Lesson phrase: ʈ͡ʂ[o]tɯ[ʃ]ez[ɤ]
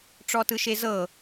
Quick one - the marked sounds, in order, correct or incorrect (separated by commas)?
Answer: incorrect, correct, correct